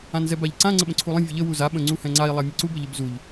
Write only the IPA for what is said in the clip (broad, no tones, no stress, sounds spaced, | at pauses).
ã n z ɛ b a ʎ ǀ ã ŋ͡ǀ ə ɓ ə̃ ǀʰ u lˠ ə̃ vʲ ə ʎ ə w u z a ɓ ə̃ ŋ͡ǀ u h ɛ̃ ŋ͡ǀ a i̯ lˠ a mʲ ə ǀ u b ə ʎ ə b z u ʎ